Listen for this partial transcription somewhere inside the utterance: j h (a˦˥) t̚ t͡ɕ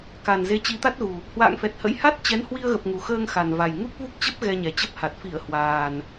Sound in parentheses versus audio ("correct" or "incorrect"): correct